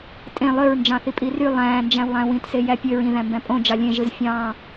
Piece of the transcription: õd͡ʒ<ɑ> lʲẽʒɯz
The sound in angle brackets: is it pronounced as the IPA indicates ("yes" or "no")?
yes